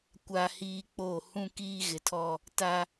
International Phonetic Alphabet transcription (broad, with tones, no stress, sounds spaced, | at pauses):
kʷ a˦ h iː˦ k͡p o˦˨ h ũ˦ k iː˦ ɣ ɪ˨ tʰ ɔ˦ | t a˦